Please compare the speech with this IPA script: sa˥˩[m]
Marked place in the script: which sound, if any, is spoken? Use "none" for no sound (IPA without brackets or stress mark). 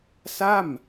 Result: m